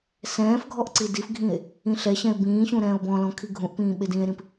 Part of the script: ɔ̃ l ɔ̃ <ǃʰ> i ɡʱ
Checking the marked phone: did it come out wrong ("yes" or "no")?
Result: yes